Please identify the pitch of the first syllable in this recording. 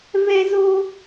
high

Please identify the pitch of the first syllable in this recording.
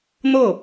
falling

